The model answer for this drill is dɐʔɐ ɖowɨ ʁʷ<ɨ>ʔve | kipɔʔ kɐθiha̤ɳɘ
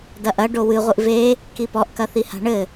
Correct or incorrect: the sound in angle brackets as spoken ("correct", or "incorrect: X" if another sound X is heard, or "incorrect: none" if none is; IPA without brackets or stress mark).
correct